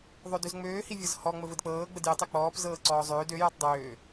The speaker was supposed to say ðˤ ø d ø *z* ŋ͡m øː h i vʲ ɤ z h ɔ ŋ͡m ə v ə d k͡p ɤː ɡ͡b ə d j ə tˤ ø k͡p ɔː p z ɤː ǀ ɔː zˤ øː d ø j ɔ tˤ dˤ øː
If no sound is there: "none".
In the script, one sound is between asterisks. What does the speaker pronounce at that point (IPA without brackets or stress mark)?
z